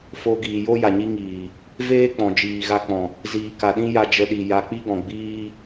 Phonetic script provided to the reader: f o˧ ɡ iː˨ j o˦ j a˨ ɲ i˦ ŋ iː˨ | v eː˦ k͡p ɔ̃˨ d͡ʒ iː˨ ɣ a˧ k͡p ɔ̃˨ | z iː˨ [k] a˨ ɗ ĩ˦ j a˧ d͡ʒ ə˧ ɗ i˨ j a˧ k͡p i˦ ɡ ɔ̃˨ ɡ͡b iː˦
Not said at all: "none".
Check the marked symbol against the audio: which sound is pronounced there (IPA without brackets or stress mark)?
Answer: k